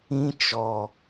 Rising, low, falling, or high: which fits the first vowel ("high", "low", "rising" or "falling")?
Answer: high